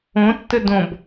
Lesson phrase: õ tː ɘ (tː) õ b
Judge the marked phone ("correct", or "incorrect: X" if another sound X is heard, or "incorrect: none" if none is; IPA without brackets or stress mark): incorrect: d